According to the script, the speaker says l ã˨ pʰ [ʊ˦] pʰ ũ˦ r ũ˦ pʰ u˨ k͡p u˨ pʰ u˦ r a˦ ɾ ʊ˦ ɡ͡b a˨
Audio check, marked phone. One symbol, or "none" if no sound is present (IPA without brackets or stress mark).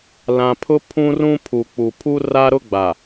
ʊ˦